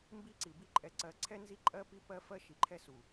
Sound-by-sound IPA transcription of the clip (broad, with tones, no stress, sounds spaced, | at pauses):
m b i˦ ǀ i˨ b i˦ ǃʼ ɛ˨ ǀ ɜ˨ ǀʰ ɛ˦ n z i˦ ǃʼ ɜ˦ p i˦ p ɜ˦ f ɜ˦ ʃ i˨ ǃʰ ɛ˦ s u˨